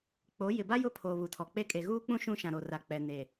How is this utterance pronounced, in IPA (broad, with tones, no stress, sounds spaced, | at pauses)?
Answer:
k͡p o˨˦ j ɪ˨ b a˦ j ʊ˦ pʰ oː˨ β u˨ tʰ ɔ˨ k͡p e˦ kʼ e˨ ɣ uː˦ k͡p ũ˦ ʃ ũ˦ ʃ ã˨ ɾ o˨ r a˨ k͡p ɛ˨ n e˨